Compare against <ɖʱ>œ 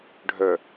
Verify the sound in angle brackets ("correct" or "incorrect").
correct